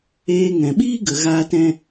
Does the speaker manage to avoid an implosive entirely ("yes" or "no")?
no